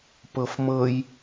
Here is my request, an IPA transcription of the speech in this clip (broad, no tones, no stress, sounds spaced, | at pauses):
p ɤ f m ɤ j